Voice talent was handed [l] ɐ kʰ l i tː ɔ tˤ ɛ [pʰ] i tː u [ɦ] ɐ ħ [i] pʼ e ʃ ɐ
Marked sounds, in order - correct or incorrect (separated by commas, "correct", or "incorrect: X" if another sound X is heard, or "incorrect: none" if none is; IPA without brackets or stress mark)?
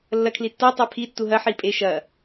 incorrect: lː, correct, correct, correct